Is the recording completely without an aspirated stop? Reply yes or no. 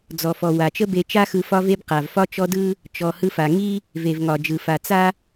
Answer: yes